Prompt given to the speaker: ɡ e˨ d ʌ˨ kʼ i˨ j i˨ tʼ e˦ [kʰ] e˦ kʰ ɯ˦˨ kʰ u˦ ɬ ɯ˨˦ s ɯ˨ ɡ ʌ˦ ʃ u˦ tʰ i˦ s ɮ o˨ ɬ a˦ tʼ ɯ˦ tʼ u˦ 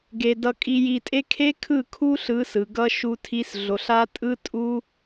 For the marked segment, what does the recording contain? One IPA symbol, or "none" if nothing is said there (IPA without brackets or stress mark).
kʰ